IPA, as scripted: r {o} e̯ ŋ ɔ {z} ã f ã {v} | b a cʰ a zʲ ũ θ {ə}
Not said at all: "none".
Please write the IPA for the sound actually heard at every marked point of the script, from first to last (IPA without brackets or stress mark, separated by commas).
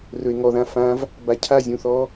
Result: ɵ, ð, v, ɔ